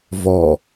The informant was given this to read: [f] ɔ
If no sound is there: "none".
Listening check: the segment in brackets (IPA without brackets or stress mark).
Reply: v